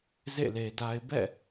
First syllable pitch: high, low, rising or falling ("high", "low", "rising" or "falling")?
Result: falling